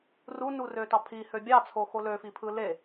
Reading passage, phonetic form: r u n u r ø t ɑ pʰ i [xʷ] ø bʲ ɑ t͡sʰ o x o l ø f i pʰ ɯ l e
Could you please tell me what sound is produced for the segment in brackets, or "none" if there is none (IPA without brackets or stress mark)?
h